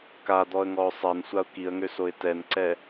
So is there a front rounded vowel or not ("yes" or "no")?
yes